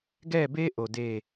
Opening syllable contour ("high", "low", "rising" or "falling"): falling